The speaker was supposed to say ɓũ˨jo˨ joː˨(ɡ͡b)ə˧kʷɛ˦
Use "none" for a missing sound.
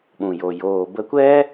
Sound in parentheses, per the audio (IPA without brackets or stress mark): b